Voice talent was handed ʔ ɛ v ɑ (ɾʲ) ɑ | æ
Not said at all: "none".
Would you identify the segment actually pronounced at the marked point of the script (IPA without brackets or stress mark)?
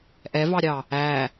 ɾʲ